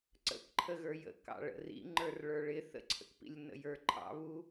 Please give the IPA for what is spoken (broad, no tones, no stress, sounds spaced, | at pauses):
ǀ ə̰ k ǃʰ ə ɣ ə˞ j ə̰ k ɑ̰ ɭ ə̰ r ḭ ŋ͡ǃ ə˞ r ɭ ə˞ ɭ ɪ θ ə̰ ǀʰ ə̰ k p ḭ lʲ n ə̰ j ə˞ ǃʰ ɑ̰ β u